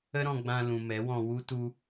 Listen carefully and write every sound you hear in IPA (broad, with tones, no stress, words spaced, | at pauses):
ə˦ɾɔ̃˧ɡ͡bã˧ lũ˨mɛ˨˦wɔ̃˧ wu˦ tu˧